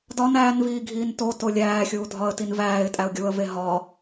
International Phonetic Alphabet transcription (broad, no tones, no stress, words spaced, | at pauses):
dɒn æːnviːɡʱiːn toto lʲæːxʲuːdʱɒə̯tin væːɪ̯tʼæʊ̯ ɡʲuə̯ve ɦɒ